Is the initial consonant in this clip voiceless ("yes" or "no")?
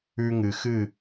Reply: no